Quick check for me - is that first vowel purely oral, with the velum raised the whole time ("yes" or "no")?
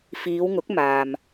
yes